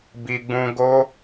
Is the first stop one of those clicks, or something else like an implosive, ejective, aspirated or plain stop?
plain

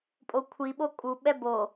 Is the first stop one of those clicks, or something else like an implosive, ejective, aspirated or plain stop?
ejective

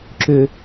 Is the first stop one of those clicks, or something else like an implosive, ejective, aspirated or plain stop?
click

